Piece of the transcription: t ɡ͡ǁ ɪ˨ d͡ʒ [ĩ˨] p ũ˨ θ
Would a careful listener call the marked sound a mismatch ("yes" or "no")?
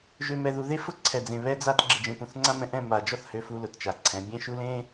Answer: yes